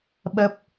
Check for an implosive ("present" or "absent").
present